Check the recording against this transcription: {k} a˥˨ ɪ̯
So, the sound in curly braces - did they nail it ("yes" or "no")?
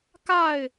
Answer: yes